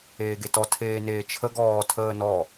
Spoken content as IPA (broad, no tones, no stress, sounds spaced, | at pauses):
eː ɡ e t ɔ tʰ eː n eː t͡ʃʰ ə ɡ ɔː tʰ əː n ɔ